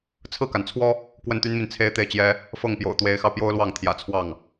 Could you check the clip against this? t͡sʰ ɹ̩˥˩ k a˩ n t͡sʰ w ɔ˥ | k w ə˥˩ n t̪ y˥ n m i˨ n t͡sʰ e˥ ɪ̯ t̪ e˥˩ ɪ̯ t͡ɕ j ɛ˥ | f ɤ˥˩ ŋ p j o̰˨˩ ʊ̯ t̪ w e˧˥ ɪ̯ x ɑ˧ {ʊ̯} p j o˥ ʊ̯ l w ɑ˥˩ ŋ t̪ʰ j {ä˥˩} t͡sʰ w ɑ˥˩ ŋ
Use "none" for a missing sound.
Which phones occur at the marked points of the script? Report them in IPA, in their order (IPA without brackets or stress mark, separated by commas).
ʊ̯, ä̰˨˩